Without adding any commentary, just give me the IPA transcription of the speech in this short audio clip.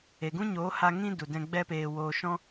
e˨ ɡ ũ˦ ɲ oː˨˦ h a˧ ŋ ĩ˦ d u˨ d ɛ̃˧ ɡ͡b ɛ˦ p eː˧ w oː˧ ʃ ɔ̃˦

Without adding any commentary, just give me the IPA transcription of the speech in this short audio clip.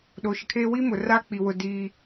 ɗ o˨ ʃ ɪ˨ kʰ eː˦ w i˦ m ʊ˨ r aː˦ k͡p i˨ w ʊ˨ d iː˦

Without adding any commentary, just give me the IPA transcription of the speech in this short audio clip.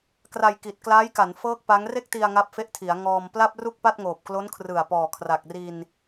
k r a˧ j k i˨˩ t̚ k l aː˦˥ j k a˩˦ n f ɤː˥˩ k̚ p a˦˥ ŋ r e˥˩ k̚ t i˧ a̯ ŋ a˦˥ p̚ f e˦˥ ʔ tʰ i˩˦ a̯ ŋ ɔː˧ m p l a˥˩ p̚ r u˥˩ k̚ p a˥˩ t̚ ŋ oː˨˩ p̚ k l o˦˥ n kʰ r ɯ˨˩ a̯ p ɔː˨˩ kʰ r a˨˩ k̚ r i˧ n

